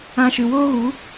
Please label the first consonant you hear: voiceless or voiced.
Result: voiceless